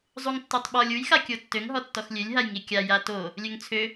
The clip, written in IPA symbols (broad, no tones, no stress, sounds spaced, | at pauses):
zˤ u ŋ tː o tˤ ɓ ɔ lʲ u j x a kʲ o tː ø ŋ ɦ ɔ tː ɔ x lʲ ø lʲ ɦ a j ŋ i kʲ a j a t o | lʲ ø ŋ t͡sʰ ø